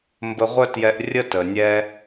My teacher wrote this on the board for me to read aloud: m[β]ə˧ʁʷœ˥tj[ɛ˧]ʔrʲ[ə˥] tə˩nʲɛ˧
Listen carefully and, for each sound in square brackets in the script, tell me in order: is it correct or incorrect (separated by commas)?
incorrect, correct, correct